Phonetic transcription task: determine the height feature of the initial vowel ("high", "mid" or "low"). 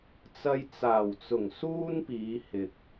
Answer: low